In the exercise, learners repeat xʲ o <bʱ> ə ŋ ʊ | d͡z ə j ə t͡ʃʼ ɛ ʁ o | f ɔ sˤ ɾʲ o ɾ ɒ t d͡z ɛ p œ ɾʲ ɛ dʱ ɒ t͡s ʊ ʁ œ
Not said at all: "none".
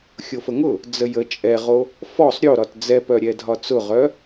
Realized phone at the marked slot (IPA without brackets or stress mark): f